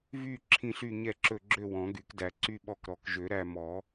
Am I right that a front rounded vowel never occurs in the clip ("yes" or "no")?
no